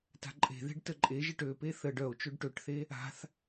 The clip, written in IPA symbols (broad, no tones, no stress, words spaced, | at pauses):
ta̤ǃʼe̤ðe̤ɖ təǃʼeʒɘʈ øpe θə ɖœo̯ t͡ʃøɖʈøʈθe | a̤θ